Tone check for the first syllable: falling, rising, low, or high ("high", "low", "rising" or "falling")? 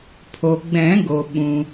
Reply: low